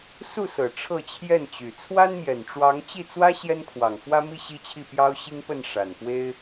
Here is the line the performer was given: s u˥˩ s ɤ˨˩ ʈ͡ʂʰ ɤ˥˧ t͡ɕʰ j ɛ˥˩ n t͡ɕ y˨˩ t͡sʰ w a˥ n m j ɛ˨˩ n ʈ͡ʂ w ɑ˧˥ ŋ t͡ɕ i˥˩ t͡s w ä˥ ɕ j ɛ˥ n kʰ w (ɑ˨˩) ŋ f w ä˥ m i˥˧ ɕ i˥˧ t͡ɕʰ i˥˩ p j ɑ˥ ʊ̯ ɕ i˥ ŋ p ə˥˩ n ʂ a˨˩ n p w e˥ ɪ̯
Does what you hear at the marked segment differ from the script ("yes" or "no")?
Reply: no